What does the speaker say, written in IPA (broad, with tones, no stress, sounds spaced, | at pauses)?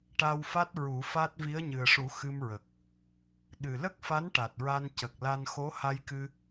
ʈ a˧ w f a˦˥ t̚ ɹ u˨˩˦ f a˦˥ t̚ v i˧˥ ə̯ ɲ ɨ˨˩ ə̯ ʂ u˨˩˦ x ɨ˧ m ɹ ə˨˩ k̚ | ɗ ɨ˨˩ l ə˦˥ k̚ f a˧˥ n ʈ a˨˩ t̚ ɹ a˧ n c ə˨˩ k̚ l a˧ n x o˧˥ h a˧ j k ɨ˧